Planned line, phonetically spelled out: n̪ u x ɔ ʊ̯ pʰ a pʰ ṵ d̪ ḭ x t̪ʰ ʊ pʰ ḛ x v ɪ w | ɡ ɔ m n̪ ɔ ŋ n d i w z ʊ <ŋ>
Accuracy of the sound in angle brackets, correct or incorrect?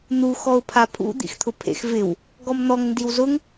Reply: correct